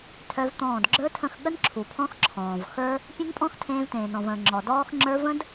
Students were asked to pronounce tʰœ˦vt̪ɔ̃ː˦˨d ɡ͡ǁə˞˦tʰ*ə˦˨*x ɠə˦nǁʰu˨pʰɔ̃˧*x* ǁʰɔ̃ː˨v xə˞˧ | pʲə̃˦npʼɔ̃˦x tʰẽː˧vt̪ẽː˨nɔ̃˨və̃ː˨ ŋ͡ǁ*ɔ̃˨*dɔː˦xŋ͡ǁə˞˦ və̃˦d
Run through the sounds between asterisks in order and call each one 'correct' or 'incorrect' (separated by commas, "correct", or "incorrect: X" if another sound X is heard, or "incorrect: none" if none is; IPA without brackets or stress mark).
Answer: incorrect: ə̃˦˨, correct, incorrect: ɔ˨